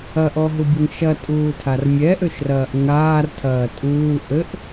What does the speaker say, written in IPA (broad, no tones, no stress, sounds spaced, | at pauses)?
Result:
ɐ ʔ ɔ ɦ u bʲ ɘ ŋ ʃ ɐ tʼ uː tʰ a r mʲ ɛ ʔ ø ʃ r ɐː ʔ ŋ aː r tʰ ɐː tʼ uː ʔ ɘ ʔ